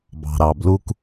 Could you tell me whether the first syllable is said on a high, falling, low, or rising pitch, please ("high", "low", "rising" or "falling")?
low